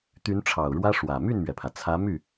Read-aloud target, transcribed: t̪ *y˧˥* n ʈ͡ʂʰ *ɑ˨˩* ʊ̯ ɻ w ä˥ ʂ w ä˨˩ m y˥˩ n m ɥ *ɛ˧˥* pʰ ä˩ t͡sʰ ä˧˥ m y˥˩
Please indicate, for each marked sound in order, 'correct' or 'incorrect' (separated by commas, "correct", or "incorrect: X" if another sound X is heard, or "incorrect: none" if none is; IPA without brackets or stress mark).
correct, correct, incorrect: ɛ˩